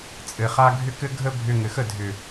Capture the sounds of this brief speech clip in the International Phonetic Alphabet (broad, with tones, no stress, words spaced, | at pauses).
t͡sʼɘ˨χa˧ ɡʱʏ˦kɘ˦ ɡʱə˦ bʱʏ˧ŋɘ˨xə˦˨ dʱʏ˨